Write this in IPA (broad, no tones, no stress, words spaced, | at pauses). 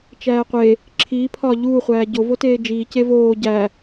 t͡ʃæːqʷe | ǁʰiː pʰɒːʎuː χʷæːɟo voteːd͡ʒiː cevoː ɟæ